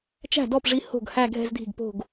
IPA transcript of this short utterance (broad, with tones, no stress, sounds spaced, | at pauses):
t͡ʃ æ̤˥˩ d ɔ˥˩ p ʐ i˧˥ h o̤˥˩ ɡ h æ˥˧ ɡʱ ɛ̤˥˧ z dʱ i̤˥˩ ɡ p o̤˥˧ ɡ